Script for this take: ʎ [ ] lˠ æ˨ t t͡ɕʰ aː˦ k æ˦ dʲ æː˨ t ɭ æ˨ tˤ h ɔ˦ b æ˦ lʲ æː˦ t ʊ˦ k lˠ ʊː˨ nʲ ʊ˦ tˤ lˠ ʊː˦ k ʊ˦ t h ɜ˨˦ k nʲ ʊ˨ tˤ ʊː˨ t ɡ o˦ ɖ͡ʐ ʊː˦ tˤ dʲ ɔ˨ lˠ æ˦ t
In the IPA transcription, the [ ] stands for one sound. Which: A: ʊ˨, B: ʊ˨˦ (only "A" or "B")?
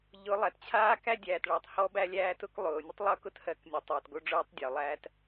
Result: B